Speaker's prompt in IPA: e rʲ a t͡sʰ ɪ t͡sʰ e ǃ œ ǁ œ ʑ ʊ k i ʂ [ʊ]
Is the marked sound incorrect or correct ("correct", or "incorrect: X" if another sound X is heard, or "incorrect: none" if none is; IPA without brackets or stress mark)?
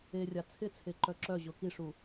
incorrect: u